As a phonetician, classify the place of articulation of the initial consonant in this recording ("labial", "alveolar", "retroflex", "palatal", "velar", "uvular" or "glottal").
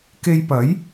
velar